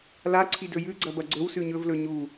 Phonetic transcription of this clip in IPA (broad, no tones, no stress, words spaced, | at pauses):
laǀʰidɵ jʉɡ͡ǀɐbɐ ɡ͡ǀɵwsʉ ɲɵvlɵ ɲu